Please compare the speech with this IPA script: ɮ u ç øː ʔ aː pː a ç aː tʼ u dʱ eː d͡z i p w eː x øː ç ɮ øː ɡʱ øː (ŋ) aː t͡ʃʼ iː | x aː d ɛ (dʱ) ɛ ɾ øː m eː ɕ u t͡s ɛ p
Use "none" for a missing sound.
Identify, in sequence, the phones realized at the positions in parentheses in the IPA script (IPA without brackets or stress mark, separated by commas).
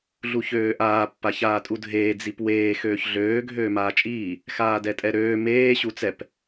m, tʼ